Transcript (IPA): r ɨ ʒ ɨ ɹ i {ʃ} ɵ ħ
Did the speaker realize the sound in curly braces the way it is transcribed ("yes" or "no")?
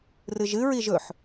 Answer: no